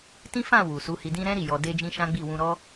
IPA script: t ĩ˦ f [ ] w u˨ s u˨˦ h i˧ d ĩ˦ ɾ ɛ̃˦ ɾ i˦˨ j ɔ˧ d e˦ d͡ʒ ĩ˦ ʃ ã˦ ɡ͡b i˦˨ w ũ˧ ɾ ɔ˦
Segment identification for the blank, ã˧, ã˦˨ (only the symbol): ã˦˨